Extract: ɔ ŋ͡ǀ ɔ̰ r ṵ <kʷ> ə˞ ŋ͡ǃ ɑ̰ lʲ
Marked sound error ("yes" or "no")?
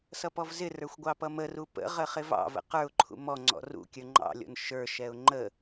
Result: yes